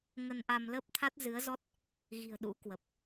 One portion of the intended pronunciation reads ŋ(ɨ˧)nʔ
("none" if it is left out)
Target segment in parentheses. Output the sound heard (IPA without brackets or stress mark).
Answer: ə˧